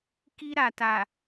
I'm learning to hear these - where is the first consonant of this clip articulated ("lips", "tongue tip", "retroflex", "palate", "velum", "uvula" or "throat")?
velum